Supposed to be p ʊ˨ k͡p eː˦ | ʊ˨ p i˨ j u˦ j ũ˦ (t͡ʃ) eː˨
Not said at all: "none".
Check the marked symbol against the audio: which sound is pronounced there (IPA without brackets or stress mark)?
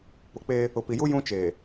t͡ʃ